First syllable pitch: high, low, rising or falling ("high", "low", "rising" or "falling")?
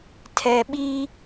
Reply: low